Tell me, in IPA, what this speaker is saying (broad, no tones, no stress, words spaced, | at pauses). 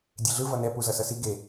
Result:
dʲeɮɯ vʌnɛ puzʌsʌsi ɡe